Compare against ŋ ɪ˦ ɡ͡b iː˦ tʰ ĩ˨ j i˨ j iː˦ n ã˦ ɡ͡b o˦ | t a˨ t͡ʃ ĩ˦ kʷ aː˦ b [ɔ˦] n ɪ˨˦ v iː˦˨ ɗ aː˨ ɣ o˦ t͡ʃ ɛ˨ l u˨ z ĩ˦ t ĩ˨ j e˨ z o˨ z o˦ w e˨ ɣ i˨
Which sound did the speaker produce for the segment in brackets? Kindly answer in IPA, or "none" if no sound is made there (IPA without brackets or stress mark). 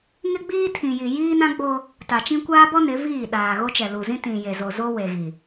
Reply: ɔ˦